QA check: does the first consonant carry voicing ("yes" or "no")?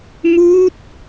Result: yes